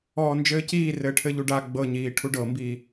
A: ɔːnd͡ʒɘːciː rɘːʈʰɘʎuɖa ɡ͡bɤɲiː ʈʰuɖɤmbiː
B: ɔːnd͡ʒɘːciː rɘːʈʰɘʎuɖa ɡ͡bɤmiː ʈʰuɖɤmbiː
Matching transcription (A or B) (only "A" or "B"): A